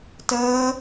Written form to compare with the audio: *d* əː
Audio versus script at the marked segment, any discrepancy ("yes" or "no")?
yes